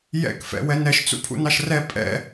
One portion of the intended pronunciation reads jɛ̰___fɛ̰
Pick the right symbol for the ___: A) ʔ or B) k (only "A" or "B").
B